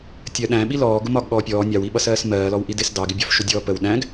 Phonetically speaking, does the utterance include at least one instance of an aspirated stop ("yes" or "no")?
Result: no